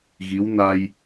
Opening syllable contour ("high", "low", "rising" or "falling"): rising